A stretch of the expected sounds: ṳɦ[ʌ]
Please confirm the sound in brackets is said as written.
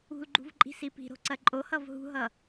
yes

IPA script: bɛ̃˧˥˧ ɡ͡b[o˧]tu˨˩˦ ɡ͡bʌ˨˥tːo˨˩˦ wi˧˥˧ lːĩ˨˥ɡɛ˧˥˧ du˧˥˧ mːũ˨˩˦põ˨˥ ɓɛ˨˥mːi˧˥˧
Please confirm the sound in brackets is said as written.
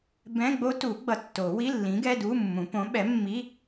no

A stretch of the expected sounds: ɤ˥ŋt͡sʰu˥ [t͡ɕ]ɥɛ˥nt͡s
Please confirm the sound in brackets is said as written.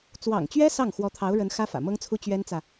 yes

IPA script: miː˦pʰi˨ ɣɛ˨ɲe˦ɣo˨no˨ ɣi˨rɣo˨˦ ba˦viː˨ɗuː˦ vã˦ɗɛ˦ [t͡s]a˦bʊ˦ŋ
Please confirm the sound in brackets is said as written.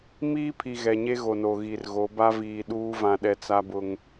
yes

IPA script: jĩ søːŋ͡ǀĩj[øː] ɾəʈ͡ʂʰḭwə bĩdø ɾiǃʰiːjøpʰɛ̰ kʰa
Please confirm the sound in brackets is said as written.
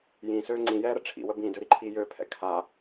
no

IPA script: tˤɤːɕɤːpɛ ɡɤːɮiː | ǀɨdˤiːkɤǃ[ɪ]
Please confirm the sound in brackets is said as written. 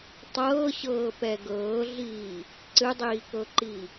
no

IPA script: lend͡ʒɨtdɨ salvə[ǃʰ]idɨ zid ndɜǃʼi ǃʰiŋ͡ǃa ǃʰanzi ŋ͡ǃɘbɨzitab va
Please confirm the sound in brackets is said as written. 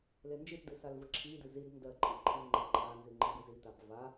no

